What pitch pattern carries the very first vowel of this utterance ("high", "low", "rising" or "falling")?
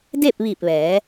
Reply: falling